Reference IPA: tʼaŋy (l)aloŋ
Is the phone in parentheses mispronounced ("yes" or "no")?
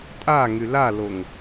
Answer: no